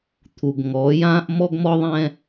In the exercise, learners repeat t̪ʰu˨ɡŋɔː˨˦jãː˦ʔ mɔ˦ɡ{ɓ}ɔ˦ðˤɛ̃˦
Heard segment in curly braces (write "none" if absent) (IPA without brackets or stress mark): m